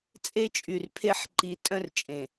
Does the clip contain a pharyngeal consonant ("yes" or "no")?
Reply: yes